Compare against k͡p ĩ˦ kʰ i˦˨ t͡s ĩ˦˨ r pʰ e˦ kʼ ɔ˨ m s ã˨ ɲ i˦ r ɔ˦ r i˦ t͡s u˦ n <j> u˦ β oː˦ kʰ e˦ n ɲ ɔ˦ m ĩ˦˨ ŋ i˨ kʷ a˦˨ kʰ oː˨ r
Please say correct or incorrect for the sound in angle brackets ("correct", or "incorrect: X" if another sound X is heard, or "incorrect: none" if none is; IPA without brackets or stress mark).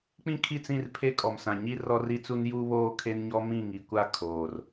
correct